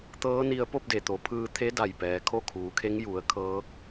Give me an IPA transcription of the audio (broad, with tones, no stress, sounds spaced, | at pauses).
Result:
t̪ ɤː˧˥ n i˧ ə̯ p o˥˨ p̚ d e˩ t̪ o˩˧ pʰ ɯː˧ t̪ʰ e˧˥ d a˧˩ j p ɛː˩˧ kʰ o˥˨ kʰ uː˩˧ kʰ e˧˥ ŋ j u˩˧ ə̯ kʰ ɤː˧˥ k̚